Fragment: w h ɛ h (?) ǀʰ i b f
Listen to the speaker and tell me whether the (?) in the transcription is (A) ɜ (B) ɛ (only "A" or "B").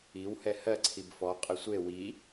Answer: A